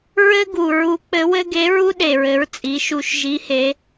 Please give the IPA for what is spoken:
ɹ ɘ˥ ɡ u˩ ɹ u˧˥ k͡p ɘ˧˥ w ɘ˥ ɡ e˧˥ ɹ u˥ ɗ e˩ ɹ ɘ˩˧ ɹ t͡sʼ i˩˧ ʃ u˧ ʃ ʒ i˧˥ h e˧˥

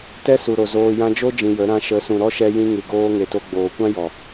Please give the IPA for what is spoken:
t ɛ˦ s u˨ ɾ o˨ z oː˦ j ã˧ d͡ʒ o˦ d͡ʒ ĩ˧ j ə˨˦ ɾ ã˦ ʃ ə˨˦ s ũ˨ ɾ ɔ˦ ʃ ɛ˧ j ĩ˧ ŋ ɨ˨ ɡ oː˧ ŋ e˨ t o˧ ɡ͡b oː˨ kʷ ã˦ j ɔ˨

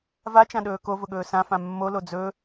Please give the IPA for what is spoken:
v a t͡ʃ ã ɗ ɵː k o v ʊ ɠ ɵː s ã f ã mː o l o d͡z ɵ

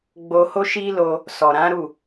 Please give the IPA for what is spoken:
ɡ͡b o˧ h o˦ ʃ i˦ l o˧ | s ɔ˨ ɾ ã˨˦ ɾ u˦˨

